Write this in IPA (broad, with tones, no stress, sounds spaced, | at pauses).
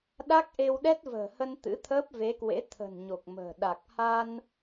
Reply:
ɗ a˦˥ k̚ ʔ e˧ w ɗ ɛ˦˥ t̚ v ə̤ː˨˩ h ə˧ n t̪ ɨ̰˧˥ t̪ʰ əː˦˥ p̚ v e˨˦ k w ḛ˧˥ t̪ʰ ə̤˨˩ n ɲ o˨˩ k̚ m ə̤ː˨˩ ɗ a˨˩ k̚ h a˧ n